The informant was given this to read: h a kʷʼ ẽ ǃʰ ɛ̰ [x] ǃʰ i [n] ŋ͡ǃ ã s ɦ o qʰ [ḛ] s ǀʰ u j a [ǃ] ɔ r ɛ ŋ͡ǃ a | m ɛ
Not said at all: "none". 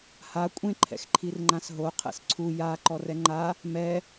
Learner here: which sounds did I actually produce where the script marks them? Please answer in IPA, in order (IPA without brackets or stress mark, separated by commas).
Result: x, r, ɛ̰, ǃ